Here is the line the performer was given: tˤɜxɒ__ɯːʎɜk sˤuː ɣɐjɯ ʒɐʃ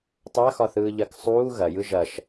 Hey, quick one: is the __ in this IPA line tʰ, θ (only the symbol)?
θ